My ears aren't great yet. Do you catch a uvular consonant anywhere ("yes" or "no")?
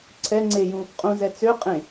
yes